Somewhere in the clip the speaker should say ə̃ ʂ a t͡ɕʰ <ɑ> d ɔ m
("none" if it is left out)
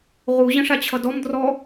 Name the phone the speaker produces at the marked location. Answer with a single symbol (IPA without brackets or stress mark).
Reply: ʌ